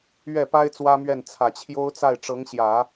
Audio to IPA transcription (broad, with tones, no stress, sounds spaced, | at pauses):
ɥ ɛ˥˩ p a˥ ɪ̯ t͡s w ä˥ m ɥ ɛ˥˩ n t͡sʰ ä˨˩ t͡ɕʰ j o˥ ʊ̯ t͡s a˥˩ ɪ̯ ʈ͡ʂ ɤ˧˥ ŋ ɕ j ä˨˩˦